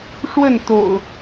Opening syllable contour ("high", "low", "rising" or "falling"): falling